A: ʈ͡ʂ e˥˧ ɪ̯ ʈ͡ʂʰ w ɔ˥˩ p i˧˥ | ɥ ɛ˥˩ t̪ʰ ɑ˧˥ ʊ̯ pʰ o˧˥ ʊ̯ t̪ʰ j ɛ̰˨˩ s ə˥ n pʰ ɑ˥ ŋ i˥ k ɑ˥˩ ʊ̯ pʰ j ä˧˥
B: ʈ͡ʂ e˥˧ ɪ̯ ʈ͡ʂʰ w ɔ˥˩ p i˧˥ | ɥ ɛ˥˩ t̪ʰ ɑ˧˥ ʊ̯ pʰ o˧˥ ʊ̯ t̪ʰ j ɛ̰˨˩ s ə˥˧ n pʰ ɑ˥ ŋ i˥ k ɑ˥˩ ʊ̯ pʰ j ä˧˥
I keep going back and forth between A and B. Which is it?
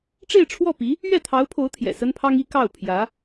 A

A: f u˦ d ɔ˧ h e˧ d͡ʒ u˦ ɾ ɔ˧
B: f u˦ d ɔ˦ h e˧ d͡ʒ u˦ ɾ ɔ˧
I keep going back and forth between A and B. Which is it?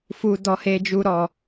A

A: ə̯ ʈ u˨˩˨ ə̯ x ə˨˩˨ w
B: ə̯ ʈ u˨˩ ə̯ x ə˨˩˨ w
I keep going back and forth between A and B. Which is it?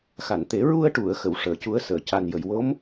A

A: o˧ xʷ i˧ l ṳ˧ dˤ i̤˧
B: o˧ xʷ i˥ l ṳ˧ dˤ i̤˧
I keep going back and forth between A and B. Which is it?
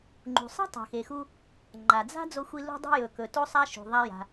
A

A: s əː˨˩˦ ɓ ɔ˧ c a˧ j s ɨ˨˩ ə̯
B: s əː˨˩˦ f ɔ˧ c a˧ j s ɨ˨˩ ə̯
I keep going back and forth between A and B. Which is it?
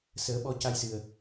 A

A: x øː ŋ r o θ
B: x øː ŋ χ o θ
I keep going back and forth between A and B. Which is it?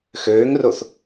A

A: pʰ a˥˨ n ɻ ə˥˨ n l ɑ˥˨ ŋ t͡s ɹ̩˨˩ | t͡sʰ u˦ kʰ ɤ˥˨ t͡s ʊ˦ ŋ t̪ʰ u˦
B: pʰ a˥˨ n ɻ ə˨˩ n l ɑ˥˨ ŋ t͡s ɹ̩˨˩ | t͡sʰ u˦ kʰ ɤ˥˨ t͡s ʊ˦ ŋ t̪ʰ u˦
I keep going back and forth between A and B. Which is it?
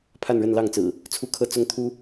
A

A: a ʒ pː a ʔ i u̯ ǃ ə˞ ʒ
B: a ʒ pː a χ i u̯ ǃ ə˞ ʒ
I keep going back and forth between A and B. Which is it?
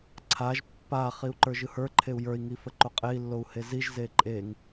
B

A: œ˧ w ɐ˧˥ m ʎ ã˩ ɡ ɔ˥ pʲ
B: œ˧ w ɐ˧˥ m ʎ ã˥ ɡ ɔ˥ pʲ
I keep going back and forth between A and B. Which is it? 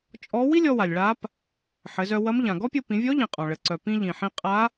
A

